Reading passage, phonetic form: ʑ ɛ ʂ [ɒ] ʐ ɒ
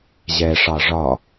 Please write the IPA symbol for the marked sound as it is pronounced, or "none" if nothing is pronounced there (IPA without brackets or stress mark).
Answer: ɑ